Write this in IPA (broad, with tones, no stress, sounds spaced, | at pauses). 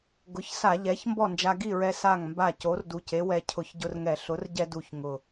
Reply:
ɡ ʊ˩˥ ç s a˧˩˧ ʎ ɛ˩˥ ç m b ɔ˥˩ n d͡ʒ a˧ ɡ i˥˩ ɹ ɛ˧ s a˥˩ ŋ m b a˥˩ c o˩˥ r d u˨˩ c e˩˥ w ɛ˧ cʰ ʊ˧˩˧ ç ɟ ʊ˧ r ŋ ɛ˧˩˧ ɬ ʊ˩˥ r ɟ ɛ˧ d u˨˩ ç ŋ ʊ˨˩